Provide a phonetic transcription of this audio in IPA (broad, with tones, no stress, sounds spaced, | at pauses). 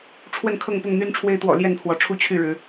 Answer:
ʈ͡ʂʰ w ə˥˨ n kʰ ɤ˥˨ ŋ p ʊ˥˨ ŋ n̪ y˦ n ʈ͡ʂʰ w e˦ ɪ̯ t̪ w ɔ̰˨˩ l j ɛ˥˨ n pʰ w ɔ˨˦ ʈ͡ʂʰ u˥˨ t͡ɕʰ y˥˨ ɻ ɻ̩˨˦